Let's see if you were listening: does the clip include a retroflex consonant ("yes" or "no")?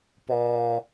no